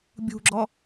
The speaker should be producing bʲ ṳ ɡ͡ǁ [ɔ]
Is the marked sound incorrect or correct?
correct